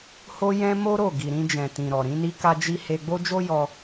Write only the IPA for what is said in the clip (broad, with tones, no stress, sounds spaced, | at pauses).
h o˦ j ɛ̃˦ m o˦ ɾ o˦˨ ɡ i˨ ɾ ĩ˧ d͡ʒ ɛ̃˨ t ĩ˨ ɾ ɔ˨ ɾ ĩ˨˦ n i˦ k a˧ d͡ʒ i˧ h e˧ ɡ͡b o˦ d͡ʒ o˦ j ɔ˧